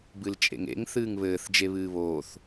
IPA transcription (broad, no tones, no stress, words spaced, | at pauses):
bɨlt͡ʃʼḛŋḛŋ θɨːŋβɘːθ d͡ʒeβɨːβoːθ